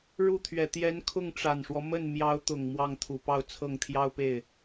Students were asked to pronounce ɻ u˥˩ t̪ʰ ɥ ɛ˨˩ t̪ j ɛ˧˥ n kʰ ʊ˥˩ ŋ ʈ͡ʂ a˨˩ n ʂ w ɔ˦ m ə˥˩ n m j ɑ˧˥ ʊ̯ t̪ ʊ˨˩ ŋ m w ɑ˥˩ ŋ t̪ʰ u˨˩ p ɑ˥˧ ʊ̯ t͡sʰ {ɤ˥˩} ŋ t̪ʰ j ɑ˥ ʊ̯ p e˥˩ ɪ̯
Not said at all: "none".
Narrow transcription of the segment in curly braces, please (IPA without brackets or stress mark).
ɤ˥˩